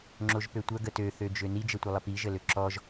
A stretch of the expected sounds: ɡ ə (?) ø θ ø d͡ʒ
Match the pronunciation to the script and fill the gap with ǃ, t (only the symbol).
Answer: t